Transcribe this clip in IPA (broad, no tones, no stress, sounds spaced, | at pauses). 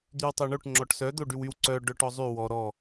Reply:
d̪ y w tˤ y ɳ o ʈ ŋ͡ǁ ɔ ʈ s œ d̪ o ɖ y w y w ǀ œ ɖ œ ʈ ɔ zˤ y w ɔ ɾ ɔ